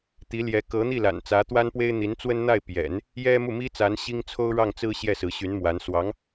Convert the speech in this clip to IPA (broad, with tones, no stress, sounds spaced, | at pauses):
t̪ i˧˥ l j ɛ˧˥ k ɤ˧˥ n̪ i˥˩ l a̰˨˩ n t͡s ä˧˥ t̪ w a˥ n p w e˥ ɪ̯ n̪ i˧˥ n t͡s w ə˥ n n̪ a˥˩ ɪ̯ p j ɛ̰˨˩˦ n | j ɛ˥ m u˥˩ m i˥ t͡s a˧˥ n ɕ i˥ ŋ t͡sʰ o˥ ʊ̯ ɻ ɑ˥˩ ŋ t͡s ɹ̩˥ ɕ j ɛ˥˩ s ɹ̩˧˥ ɕ y˧˥ n m w a˧˥ n s w ɑ˧˥ ŋ